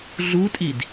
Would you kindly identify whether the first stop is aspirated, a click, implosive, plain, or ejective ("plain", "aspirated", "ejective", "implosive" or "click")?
ejective